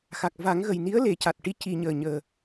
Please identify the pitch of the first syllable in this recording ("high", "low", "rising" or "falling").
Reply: low